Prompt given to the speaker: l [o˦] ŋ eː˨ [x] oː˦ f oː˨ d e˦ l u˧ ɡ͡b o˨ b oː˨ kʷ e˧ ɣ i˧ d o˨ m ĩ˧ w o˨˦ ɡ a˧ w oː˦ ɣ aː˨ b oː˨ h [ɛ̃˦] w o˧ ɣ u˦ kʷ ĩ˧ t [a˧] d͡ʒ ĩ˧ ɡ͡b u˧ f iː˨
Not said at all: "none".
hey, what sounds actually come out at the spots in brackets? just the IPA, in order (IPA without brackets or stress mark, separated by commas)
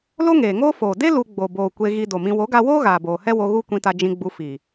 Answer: o˦, ŋ, ɛ˦, a˧